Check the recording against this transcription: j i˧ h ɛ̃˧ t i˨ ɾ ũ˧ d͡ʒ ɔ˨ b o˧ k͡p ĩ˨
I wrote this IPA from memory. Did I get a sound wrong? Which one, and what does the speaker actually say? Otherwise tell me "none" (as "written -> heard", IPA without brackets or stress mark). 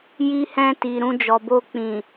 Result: none